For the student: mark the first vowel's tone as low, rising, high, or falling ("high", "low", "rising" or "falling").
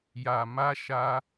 low